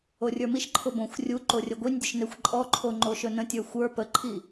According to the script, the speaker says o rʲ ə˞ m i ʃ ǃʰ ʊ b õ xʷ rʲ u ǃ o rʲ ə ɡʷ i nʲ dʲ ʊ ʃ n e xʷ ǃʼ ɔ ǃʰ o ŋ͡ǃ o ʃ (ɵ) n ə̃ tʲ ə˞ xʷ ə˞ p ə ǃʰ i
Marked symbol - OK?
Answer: yes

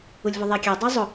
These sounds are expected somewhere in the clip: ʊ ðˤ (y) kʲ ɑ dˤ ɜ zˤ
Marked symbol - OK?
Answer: no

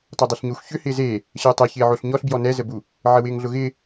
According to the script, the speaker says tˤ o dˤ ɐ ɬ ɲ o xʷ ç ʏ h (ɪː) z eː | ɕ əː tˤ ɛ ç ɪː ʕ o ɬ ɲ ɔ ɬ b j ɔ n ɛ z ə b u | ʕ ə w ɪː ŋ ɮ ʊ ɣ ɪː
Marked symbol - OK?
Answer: yes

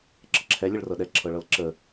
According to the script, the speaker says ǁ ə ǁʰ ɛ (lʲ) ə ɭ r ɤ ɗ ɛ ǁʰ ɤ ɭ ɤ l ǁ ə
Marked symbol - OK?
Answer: yes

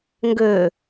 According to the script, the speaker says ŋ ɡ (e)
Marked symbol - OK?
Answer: no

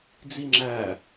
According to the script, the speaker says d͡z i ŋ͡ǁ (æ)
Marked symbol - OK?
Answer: yes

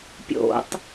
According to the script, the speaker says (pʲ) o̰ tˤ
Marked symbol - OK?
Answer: yes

